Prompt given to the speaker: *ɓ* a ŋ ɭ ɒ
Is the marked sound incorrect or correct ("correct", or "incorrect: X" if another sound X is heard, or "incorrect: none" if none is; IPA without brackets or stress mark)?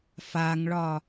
incorrect: f